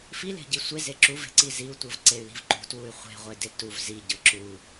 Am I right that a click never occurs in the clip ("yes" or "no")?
no